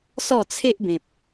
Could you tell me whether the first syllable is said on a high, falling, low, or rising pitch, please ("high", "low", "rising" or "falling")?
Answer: falling